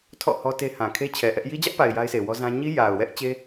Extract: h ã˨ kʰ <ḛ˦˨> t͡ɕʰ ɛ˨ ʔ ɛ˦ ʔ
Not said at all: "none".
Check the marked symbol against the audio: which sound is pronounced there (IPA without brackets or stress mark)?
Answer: e˦